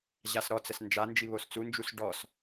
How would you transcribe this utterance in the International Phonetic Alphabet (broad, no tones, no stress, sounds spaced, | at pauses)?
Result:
ʑ a s ɾ ɔ t͡s ə s n d͡ʒ a n d͡ʒ i β o s t͡s u n d͡ʒ u s ɖ ɔ s